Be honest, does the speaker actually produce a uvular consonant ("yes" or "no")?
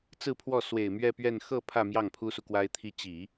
no